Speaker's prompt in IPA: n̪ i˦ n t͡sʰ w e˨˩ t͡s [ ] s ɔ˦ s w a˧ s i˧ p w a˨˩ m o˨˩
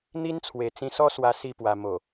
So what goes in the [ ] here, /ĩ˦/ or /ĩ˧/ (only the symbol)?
ĩ˧